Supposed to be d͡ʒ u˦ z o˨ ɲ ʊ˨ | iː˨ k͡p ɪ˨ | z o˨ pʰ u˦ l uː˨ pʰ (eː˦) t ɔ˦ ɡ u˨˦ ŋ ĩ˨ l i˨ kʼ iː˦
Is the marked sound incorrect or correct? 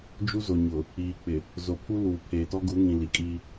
incorrect